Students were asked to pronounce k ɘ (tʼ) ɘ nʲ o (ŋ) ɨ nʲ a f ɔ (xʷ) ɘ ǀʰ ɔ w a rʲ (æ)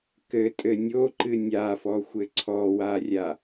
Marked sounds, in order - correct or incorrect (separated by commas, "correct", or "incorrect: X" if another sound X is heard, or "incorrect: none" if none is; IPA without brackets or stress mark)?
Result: correct, incorrect: ǃ, correct, incorrect: a